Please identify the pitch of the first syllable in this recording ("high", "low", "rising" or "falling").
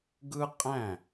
high